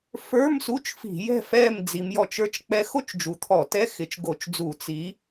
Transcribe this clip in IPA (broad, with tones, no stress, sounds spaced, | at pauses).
f ə˞˧˥˧ m s u˧˥˧ t͡ʃ f i̤˧˩˧ j ɛ̤˦˨ f ɛ˦˨ m d͡z i˨˦ m j ɔ˦˨ t͡ʃ ə˞˥ t͡ʃ k͡p ɛ˥ x o˥ t͡ʃ d͡ʒ u˨˦ t̪ʰ ɔ˧˩˧ t ɛ˧˥˧ x ɪ˨˦ t͡ʃ ɡ o˧˩˧ t͡ʃ d͡z u˧˩˧ t͡s i˨˦